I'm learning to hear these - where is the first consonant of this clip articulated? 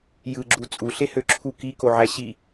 palate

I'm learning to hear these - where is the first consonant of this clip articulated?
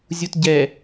tongue tip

